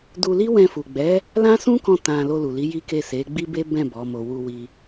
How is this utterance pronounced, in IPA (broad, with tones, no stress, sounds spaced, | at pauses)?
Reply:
d u˧ l i˦ w ɛ̃˧ f u˨ ɡ͡b ɛ˨˦ | l ã˦ s ũ˦ k ɔ̃˧ t ã˨ l o˧ l u˨ l i˨˦ j i˦ k e˦˨ s e˨˦ ɡ͡b i˦ b e˦ b ɛ̃˦˨ b ɔ˨˦ m o˧ w u˧ w i˧